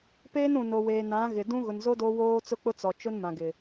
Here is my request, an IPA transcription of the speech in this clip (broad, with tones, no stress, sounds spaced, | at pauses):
p eː˦ n ũ˨ n o˨ w eː˨ n ã˨˦ ɣ ɪ˨ d ũ˦ ɣ ʊ˨ n z o˦ d o˦ w oː˦ t͡s ʊ˦ k͡p ʊ˦ t͡s ɔ˨ t͡ʃ ʊ˦ n m ã˨ ɡ ɪ˨